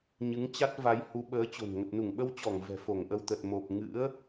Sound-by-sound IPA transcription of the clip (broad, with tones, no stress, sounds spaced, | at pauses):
ɲ ɨ˨˦ ŋ t͡ɕ a˦˥ t̚ v a˨˦ j h u˨˦ ɓ əː˨˦ t͡ɕ o̤˨˩ n ŋ ə˨˩ t̚ n u˧˩ ŋ ɓ ə˧ w t͡ɕ ɔ˧˩ ŋ v ɛ̤˨˩ f o˧˩ ŋ ʔ ə˧ w t̪ ə˨˩ t̚ m o˨˩ p̚ ŋ ɨ̰˧˥ ə̯